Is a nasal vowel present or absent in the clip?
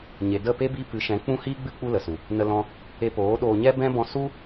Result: present